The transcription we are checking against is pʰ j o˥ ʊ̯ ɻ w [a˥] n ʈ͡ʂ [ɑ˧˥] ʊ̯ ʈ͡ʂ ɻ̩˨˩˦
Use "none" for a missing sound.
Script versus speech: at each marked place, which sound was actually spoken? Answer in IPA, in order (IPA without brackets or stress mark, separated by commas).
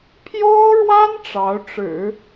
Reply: a˥, ɑ˧˥